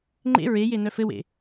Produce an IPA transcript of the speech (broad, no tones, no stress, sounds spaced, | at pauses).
ŋ͡ǃ ḛ ɹ e j e n œ f ɘ w ḛ